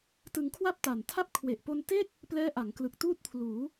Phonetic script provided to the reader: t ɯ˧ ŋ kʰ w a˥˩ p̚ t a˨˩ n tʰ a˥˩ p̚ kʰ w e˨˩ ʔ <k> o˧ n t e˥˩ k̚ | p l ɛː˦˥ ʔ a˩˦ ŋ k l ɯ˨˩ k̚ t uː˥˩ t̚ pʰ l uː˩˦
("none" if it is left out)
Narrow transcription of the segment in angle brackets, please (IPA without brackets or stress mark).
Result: p